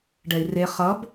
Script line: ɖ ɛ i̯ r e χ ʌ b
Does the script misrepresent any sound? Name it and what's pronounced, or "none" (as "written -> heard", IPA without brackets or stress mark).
none